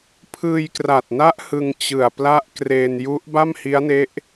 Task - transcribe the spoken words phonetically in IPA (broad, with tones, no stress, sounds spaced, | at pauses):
pʰ ɯː˧ j k r a˨˩ t̚ n a˦˥ ʔ h ɯ˧ ŋ t͡ɕ ɯ˨˩ a̯ p l a˦˥ ʔ k r eː˧ n j u˦˥ ʔ b a˥˩ m h i˦˥ a̯ n e˦˥ ʔ